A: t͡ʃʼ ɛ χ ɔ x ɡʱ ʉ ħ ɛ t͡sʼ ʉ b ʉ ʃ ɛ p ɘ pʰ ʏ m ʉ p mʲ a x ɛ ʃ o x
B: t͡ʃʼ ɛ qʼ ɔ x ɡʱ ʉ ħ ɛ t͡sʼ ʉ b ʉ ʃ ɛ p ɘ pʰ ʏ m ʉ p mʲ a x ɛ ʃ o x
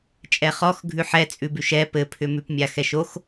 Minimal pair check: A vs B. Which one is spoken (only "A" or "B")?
A